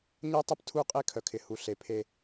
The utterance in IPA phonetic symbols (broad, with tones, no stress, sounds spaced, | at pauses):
ɲ ɐ˦ tˤ ɐ˦ p tʰ u˦˨ qʼ e˦ kʰ œ˨ kʰ ɪ˨ h u˨ ɬ e˨ pʰ e˦